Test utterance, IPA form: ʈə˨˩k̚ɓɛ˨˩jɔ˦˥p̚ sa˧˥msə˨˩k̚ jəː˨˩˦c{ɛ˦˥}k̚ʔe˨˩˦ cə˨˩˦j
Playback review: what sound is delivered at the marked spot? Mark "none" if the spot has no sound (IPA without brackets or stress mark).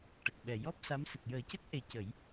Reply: ə˦˥